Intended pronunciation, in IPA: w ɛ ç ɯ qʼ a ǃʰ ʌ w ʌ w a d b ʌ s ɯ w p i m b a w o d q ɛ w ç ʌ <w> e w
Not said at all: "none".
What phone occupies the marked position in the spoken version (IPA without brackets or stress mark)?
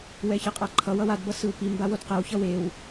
w